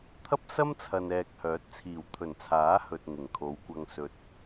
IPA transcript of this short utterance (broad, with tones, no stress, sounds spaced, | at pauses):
t̪ʰ ɐ˥ p̚ s ɐ˥ m t͡sʰ ɐ˨ n ɛː˨ k̚ h œː˨˥ t̚ t͡sʰ iː˨˩ w t̪ʰ ɵ˨˩ n t͡sʰ aː˨˥ h ɵ˨ t̚ ŋ ɪ˨˩ ŋ kʰ o˨˧ w kʷ ɐ˧ ŋ s ɵ˨ t̚